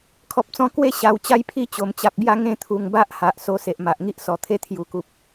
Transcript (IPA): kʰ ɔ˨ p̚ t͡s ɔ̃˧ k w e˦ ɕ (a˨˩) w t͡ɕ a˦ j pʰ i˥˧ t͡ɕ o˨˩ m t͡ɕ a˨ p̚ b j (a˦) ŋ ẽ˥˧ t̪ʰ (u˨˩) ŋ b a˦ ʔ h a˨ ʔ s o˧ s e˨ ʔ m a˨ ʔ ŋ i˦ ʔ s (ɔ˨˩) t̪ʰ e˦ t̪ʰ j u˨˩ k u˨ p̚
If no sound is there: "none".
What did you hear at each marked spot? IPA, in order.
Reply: a˨˩, a˥˧, u˨˩, ɔ˨˩

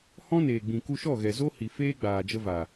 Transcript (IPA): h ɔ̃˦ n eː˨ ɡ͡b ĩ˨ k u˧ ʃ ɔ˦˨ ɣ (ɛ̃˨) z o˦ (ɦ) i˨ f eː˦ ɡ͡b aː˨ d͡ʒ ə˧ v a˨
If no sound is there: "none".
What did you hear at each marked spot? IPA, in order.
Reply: ɛ˨, h

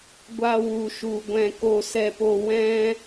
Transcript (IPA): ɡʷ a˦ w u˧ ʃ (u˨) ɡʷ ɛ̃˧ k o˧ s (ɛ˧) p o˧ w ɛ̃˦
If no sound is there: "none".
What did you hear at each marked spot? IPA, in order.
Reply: u˧, ɛ˧

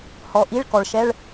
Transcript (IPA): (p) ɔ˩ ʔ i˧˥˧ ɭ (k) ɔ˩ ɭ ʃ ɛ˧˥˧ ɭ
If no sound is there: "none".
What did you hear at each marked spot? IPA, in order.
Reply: h, k

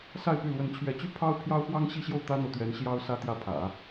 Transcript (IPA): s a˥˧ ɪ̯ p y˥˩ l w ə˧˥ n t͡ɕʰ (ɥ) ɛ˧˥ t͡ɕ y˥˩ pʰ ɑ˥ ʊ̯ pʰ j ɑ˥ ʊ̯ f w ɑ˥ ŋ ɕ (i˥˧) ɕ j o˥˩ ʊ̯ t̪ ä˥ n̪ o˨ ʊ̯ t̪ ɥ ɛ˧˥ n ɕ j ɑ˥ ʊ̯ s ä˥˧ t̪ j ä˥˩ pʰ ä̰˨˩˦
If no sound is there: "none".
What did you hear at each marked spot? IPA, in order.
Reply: ɥ, i˥˧

